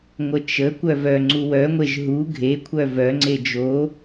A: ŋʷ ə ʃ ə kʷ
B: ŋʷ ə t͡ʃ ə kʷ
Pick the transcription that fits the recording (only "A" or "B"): B